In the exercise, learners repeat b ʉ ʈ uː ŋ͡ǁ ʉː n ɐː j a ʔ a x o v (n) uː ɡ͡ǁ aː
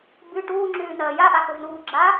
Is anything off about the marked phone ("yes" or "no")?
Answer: no